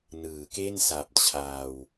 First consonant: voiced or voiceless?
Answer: voiced